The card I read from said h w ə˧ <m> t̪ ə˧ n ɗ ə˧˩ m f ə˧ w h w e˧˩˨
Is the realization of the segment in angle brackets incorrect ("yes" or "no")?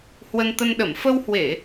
yes